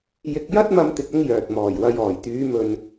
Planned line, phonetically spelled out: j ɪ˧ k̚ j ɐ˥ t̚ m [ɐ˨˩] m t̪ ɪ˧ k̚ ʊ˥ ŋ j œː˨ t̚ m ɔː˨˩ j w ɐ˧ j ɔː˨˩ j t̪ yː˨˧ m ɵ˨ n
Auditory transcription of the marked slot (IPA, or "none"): ɐ˥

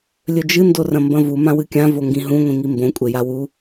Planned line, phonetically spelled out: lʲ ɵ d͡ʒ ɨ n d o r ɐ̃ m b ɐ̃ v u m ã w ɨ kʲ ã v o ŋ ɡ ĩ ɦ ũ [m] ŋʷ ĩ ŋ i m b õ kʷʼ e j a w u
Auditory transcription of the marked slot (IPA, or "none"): none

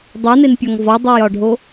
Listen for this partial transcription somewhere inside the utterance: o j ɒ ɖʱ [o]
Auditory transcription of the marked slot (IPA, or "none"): o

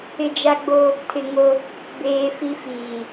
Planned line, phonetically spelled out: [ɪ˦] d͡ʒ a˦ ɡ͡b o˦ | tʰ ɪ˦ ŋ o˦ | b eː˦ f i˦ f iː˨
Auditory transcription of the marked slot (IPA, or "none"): ɪ˦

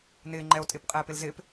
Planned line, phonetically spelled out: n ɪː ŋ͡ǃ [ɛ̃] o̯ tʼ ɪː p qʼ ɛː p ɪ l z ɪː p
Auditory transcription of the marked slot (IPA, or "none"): ɛ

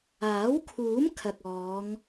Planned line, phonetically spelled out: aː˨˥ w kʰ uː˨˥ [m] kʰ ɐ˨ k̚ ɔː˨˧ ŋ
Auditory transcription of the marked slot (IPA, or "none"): m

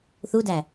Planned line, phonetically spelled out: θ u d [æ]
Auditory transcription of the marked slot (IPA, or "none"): æ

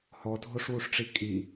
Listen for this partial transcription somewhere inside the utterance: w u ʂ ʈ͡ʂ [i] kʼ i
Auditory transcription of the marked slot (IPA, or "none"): i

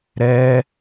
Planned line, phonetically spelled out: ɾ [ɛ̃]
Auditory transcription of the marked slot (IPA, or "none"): ɛ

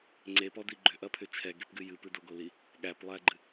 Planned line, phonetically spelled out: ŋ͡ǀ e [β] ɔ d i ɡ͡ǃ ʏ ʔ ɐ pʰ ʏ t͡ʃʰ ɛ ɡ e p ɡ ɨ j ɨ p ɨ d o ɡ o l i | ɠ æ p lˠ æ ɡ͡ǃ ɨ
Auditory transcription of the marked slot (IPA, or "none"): p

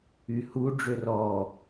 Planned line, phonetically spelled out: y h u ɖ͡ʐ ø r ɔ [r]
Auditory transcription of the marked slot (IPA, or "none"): none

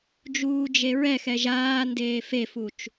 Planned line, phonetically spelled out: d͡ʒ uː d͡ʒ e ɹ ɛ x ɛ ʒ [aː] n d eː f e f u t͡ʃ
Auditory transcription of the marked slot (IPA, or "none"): aː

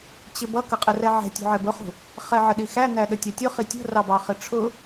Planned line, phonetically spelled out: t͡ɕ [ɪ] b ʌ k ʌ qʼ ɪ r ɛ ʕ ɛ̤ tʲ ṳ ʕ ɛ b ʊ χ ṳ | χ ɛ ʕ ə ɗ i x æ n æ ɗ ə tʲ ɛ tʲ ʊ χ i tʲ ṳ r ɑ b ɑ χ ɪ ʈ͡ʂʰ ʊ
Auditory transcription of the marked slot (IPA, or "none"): ɪ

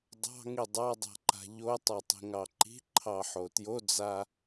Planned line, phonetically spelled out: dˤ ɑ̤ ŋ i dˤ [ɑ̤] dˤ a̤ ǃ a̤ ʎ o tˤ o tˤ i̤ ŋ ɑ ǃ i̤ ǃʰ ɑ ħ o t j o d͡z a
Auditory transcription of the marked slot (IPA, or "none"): ɑ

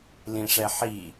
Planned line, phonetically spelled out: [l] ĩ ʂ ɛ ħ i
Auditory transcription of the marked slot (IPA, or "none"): l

